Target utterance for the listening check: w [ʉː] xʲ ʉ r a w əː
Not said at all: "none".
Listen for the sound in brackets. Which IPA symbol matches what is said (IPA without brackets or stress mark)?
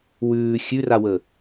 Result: ʉː